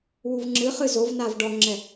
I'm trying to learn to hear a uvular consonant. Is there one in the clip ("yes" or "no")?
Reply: yes